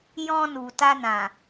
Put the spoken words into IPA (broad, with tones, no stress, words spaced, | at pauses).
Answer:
jɔ̃˧nu˨ ta˧nã˨